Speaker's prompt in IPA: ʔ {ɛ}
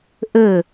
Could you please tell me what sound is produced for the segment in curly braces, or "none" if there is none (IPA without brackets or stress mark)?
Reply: ə